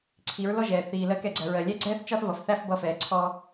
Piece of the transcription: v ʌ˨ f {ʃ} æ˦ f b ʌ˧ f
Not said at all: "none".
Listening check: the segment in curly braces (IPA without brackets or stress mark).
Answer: θ